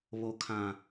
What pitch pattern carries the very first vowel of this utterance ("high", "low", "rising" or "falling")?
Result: high